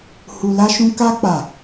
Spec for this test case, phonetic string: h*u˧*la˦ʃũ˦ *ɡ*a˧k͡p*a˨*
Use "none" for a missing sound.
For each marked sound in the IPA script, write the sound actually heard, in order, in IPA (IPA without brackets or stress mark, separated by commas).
u˧, k, a˨